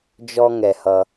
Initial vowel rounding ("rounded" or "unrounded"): rounded